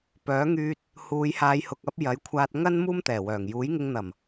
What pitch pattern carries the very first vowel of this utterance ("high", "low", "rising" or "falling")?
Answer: rising